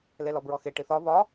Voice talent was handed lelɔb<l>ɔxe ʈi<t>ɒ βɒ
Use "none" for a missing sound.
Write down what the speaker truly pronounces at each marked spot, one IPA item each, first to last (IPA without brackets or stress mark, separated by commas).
ɹ, θ